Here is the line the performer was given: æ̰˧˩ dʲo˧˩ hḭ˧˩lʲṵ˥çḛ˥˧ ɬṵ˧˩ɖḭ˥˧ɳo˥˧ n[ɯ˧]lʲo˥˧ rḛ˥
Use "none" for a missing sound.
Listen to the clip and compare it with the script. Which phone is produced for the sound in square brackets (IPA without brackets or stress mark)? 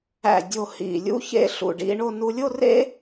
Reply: u˧